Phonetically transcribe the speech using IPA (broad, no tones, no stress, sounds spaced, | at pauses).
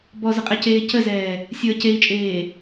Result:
b ɔ z ə qʼ ɛ c eː c ə z ɛː | sʲ əː c e i̯ t͡ʃʼ eː